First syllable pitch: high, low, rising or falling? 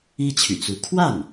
high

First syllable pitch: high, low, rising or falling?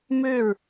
falling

